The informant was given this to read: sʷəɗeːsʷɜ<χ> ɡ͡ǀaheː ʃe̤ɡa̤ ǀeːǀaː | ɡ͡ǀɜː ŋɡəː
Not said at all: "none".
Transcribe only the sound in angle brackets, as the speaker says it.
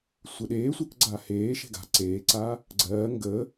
k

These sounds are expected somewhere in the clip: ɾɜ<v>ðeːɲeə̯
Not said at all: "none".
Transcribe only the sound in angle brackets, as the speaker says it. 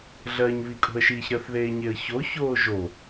θ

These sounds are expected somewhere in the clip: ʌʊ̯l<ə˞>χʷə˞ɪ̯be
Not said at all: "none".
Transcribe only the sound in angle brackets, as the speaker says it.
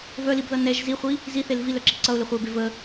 ə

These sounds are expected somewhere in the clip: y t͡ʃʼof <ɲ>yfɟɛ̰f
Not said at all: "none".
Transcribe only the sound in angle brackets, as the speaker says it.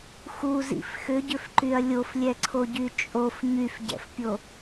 ɲ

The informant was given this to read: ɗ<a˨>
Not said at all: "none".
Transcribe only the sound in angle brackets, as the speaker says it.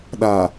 a˨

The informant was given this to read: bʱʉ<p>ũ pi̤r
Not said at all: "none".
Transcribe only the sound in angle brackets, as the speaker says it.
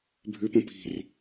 p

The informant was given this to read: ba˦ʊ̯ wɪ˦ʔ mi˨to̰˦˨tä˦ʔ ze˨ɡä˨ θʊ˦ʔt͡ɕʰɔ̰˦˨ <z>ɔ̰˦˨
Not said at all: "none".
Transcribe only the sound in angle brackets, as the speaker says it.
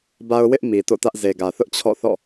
θ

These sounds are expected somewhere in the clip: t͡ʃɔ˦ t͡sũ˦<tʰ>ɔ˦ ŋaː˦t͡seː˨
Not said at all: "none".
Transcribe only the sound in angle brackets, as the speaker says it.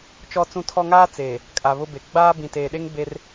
tʰ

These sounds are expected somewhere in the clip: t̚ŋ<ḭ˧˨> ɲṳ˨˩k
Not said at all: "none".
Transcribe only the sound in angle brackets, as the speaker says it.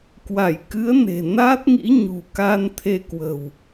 ḭ˧˥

